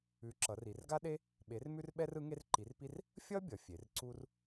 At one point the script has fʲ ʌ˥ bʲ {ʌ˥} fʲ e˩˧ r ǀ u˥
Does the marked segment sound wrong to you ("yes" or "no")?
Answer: yes